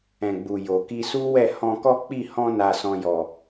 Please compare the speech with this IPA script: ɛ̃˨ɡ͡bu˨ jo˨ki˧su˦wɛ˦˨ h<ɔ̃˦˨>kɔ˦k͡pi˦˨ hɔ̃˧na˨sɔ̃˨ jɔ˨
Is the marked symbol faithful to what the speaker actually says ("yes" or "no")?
no